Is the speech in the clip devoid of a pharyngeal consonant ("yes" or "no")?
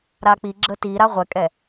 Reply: yes